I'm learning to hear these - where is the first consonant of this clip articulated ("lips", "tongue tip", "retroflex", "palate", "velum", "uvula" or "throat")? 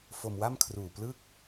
lips